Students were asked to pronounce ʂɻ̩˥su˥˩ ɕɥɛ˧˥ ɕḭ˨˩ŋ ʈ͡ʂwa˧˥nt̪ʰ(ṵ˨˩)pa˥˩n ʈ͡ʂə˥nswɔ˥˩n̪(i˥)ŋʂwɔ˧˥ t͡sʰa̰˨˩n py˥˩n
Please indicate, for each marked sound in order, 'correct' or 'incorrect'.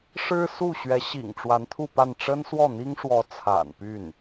incorrect: u˥˧, correct

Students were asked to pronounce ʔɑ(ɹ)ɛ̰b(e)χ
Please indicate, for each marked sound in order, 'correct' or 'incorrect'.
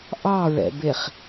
correct, correct

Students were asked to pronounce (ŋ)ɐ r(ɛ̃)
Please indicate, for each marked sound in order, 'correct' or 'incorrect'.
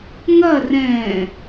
correct, correct

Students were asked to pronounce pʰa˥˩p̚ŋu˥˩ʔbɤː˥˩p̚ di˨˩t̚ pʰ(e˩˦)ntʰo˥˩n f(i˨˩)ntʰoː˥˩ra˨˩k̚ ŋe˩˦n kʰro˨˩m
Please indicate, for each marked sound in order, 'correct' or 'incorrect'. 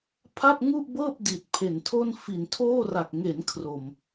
incorrect: e˨˩, correct

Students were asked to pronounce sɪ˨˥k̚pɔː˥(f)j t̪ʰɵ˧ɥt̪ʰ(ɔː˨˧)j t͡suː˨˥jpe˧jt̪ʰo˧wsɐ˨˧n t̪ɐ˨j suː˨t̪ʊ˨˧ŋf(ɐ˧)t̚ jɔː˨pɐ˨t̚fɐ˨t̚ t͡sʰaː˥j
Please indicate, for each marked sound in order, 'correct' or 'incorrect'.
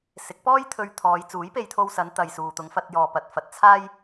incorrect: none, correct, correct

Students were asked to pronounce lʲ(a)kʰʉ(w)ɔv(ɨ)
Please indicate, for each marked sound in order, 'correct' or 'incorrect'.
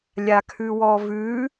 correct, correct, incorrect: ʉ

